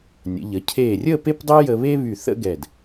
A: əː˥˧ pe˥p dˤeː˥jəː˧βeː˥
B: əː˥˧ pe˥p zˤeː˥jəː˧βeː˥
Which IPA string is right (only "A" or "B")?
A